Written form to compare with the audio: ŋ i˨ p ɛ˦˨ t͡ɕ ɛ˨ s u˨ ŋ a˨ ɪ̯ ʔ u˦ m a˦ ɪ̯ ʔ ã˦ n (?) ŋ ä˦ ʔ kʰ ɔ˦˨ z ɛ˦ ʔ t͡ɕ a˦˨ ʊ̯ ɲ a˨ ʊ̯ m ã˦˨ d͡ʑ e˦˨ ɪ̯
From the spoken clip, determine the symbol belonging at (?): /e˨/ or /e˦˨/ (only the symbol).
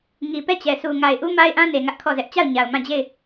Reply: e˨